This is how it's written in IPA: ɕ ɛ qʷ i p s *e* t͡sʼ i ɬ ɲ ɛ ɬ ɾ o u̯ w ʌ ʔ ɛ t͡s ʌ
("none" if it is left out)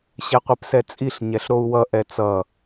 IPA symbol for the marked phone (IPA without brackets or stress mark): ɛ